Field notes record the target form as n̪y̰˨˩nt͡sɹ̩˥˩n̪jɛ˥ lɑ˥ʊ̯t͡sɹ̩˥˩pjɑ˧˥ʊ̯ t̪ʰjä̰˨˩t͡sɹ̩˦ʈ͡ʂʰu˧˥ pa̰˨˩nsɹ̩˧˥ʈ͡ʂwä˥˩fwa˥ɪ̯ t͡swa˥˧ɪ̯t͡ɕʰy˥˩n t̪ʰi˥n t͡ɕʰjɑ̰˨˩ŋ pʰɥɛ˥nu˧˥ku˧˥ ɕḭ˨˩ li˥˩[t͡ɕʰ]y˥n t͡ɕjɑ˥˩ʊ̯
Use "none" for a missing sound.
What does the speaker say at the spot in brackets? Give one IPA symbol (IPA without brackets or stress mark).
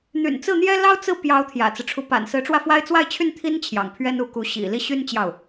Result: ɕ